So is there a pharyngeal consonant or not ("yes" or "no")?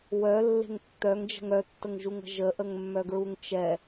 no